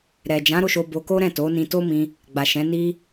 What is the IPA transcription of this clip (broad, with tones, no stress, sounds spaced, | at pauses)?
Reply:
ɾ ɛ˨ d͡ʒ ã˨˦ ɾ o˦˨ ʃ o˧ b o˧ k o˦ ɾ ɛ̃˦˨ t o˨˦ n ĩ˧ t o˦ m ĩ˧ | ɡ͡b a˨ ʃ ɛ̃˨˦ n i˦